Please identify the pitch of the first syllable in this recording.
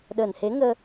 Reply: low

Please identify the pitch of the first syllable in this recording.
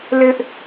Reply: high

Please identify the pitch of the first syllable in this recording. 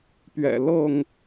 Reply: low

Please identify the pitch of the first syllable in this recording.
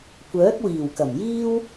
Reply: rising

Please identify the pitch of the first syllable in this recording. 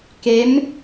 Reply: rising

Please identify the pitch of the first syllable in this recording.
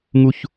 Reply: high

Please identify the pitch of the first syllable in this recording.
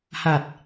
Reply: low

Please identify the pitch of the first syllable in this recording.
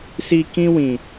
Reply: low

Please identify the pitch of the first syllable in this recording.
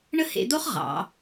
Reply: high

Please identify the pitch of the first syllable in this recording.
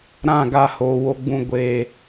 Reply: falling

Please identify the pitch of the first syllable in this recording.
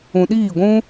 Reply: low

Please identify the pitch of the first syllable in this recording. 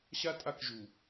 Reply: high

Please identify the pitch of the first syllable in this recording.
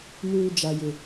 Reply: high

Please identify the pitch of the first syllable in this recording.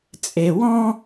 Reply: low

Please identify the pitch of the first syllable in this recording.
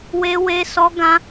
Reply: high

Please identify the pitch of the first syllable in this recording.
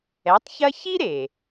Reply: rising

